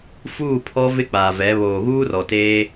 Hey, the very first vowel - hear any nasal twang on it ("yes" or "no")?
no